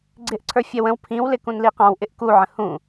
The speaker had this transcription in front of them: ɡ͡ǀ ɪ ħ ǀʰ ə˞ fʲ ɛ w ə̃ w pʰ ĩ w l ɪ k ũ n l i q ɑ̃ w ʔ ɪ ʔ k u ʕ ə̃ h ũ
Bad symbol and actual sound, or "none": ħ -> ʔ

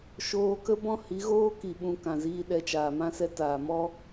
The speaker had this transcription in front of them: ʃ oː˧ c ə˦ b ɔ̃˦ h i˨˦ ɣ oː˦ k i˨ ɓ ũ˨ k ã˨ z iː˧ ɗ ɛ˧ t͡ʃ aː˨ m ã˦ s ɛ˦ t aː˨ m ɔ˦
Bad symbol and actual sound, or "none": c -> k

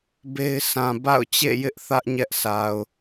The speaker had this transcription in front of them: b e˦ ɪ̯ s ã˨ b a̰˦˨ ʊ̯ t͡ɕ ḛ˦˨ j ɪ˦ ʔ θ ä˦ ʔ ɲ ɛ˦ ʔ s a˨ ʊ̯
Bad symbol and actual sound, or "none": none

